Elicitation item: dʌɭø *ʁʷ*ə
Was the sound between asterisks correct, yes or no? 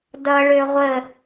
yes